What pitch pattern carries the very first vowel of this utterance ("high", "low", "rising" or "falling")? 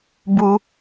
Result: high